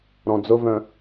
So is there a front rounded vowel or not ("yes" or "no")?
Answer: yes